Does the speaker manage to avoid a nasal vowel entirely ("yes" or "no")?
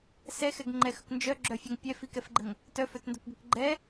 yes